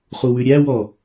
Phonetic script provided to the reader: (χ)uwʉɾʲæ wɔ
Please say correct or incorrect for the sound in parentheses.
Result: correct